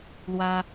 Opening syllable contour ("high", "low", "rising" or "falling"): high